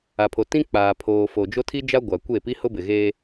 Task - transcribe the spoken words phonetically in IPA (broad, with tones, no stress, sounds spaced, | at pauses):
a˨ pʰ o˨ t ĩ˦ k͡p aː˨ pʰ oː˨ f o˨ d͡ʒ o˦ tʰ i˦ d͡ʒ a˦ ɡʷ a˨ kʷ e˦˨ p i˦ h ʊ˦ b ɪ˨ ɣ e˦